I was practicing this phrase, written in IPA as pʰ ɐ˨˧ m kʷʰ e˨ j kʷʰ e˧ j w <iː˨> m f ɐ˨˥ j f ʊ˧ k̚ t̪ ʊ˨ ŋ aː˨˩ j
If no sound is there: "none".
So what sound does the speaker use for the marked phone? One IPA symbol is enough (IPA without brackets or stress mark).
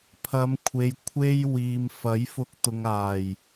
iː˨